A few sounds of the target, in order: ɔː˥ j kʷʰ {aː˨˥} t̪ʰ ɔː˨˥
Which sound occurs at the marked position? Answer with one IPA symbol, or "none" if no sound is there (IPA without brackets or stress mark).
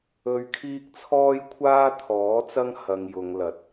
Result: aː˥